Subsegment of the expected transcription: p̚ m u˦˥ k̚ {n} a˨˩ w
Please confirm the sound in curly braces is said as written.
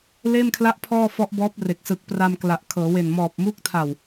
no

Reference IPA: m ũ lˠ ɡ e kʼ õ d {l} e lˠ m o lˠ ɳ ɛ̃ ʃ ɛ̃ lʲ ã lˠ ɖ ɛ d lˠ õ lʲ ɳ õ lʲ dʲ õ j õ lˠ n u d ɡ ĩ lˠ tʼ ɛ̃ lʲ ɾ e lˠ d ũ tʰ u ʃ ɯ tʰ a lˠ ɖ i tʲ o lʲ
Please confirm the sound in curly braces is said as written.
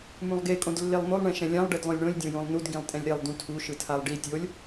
no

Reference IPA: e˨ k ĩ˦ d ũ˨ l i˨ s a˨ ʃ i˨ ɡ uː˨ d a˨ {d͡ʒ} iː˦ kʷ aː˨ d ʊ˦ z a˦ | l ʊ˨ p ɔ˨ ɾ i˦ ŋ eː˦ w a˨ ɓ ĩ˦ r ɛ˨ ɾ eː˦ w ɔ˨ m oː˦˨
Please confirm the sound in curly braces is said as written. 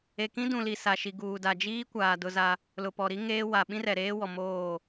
yes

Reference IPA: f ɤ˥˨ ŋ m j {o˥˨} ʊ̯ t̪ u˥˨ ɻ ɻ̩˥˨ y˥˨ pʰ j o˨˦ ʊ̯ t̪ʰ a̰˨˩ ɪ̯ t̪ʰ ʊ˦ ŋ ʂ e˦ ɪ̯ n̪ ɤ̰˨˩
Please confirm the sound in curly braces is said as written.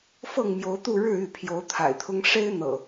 no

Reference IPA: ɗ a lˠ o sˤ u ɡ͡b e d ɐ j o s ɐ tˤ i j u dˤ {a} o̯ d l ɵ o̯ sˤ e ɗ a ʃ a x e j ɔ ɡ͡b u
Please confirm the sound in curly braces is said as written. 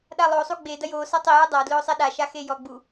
yes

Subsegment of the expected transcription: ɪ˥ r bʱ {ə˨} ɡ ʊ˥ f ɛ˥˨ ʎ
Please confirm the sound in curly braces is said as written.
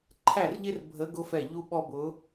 no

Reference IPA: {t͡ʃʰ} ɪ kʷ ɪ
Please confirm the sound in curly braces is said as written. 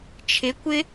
yes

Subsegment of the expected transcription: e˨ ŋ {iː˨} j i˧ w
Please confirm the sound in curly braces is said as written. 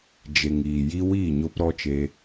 yes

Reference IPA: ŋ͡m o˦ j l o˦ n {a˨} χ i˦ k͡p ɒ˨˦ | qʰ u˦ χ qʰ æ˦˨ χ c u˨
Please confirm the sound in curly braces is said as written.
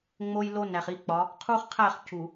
no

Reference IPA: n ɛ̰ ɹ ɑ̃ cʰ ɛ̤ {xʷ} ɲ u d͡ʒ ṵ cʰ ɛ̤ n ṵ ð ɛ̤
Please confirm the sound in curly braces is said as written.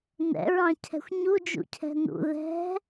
yes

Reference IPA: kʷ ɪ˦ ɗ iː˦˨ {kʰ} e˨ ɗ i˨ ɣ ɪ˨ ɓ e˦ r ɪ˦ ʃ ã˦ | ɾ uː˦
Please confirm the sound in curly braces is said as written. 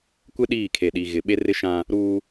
yes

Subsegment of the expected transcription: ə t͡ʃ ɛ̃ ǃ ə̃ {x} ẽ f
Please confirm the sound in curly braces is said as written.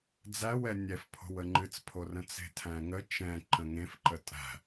no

